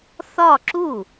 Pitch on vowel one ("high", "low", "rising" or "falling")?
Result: falling